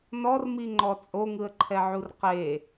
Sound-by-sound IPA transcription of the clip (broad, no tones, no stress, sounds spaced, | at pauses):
n ɔ r m i ŋ͡ǃ ɔ t͡sʼ o ŋ ɯ ə̯ ǃʰ ɛ ʕ u r q e